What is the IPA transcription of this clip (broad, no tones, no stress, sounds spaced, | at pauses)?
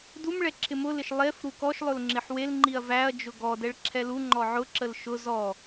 d u m ɭ ɛ ǁʰ ɪ m ʊ l ɪ ʃ lˠ e f ɾ u k ɔ ʃ lˠ ʊ l ŋ͡ǁ ɪ ħ w e l ŋ͡ǃ i ɐ̯ v æ ɐ̯ d͡ʒ ʊ ɡ ɔ d ɛ ɭ ǁʰ ɛ l u ŋ͡ǃ ɔ ʕ ʊ ǁ ə l ʃ ʊ z ɔ